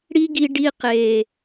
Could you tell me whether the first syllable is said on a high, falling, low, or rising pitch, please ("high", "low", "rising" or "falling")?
high